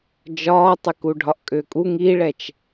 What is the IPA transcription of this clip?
d͡ʒ ɒː tˤ ʏ k u ɖʱ ɒ ʔ kʼ ʏː kʼ u ŋ i ɭ ɛ t͡ʃ

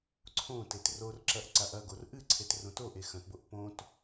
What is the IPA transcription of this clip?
ǀʰ õ t e t r o r ǁ ɐ ʔ ǀ a ʔ ɐ ɡ o r ʔ ɨ ǀʰ e t r õ t o ʔ e x ɐ̃ t b o ʔ p õ t

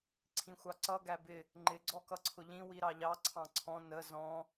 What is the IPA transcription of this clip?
ǀʰ ĩ xʷ ɑ ǀ ʌ ɡ æ b ɪ | ŋ͡ǃ ɪ ɡ͡ǀ ɔ k ʌ ǀʰ ʊ ʎ ĩ w i ɾ ɑ ʎ ɑ ǀʰ ɑ̃ ǀʰ ɔ̃ n ə z ɔ̃

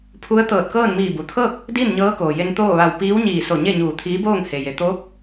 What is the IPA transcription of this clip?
pʰ u˧˥ ə̯ t̪ ɤː˧˩ t̚ k ɤː˥˨ n m iː˧˩ b u˩ t̪ʰ ɤː˥˨ k̚ | d i˥˨ n ɲ ɤː˧˥ k oː˩ j e˧ n t̪ oː˥˨ ʋ a˧˩ w p iː˧˥ w ɲ iː˧˩ s o˧˩ ɲ e˥˨ ɲ uː˧˩ t̪ʰ iː˧˥ b oː˥˨ ŋ h e˩ j e˩ t̪ oː˧˥ p̚

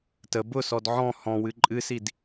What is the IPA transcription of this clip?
t ə b ʊ s ɔ d ʕ ɔ̃ h ɔ̃ w ɨ ǃʼ ɨ s i d

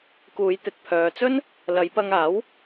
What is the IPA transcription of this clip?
k uː˨˧ j t̪ ɪ˨ k̚ pʰ œː˨ t͡s ɵ˥ n | l ɐ˨˧ j p ɐ˧ ŋ aː˨˥ w

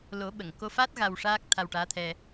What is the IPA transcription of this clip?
l o˨˩˦ ɓ ə˨˩˨ ŋ k o˧ f a˦˥ t̚ ɣ a˧ w ʂ aː˦˥ k̚ t̪ʰ a˧ w ʈ aː˧˥ t̪ʰ ɛ˧

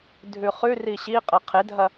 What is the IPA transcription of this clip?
dʱ ʉ χ ʉ r i ɕ i qʼ ɐ qʰ e dʱ ɐ

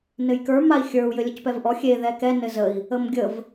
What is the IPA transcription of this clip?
n ɘ j k ə˞ m a i̯ xʲ ə˞ u̯ j ɘ lʲ ə c p ɛ v ʔ ɔ xʲ e ð ɛ k ɛ n ɘ z ə i̯ | ə m ɡʲ ə v

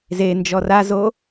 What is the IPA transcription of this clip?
z e n d͡ʒ ɔ r a z o

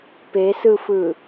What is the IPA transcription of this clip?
p e s ɯ f ɯ

